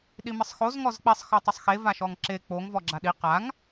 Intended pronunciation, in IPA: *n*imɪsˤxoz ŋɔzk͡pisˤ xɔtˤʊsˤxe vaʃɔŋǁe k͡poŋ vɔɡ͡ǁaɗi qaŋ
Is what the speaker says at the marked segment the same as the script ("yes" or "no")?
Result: no